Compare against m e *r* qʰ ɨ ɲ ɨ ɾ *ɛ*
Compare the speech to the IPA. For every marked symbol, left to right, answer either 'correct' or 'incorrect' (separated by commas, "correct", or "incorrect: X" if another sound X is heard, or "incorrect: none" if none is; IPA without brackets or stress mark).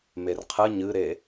correct, incorrect: e